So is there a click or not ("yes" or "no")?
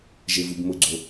yes